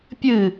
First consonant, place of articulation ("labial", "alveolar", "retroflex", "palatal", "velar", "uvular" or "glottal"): labial